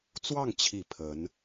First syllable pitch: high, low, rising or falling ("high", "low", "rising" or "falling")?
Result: falling